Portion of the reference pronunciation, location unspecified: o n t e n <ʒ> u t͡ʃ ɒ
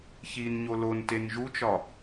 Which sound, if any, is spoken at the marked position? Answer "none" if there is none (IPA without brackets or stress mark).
ʒ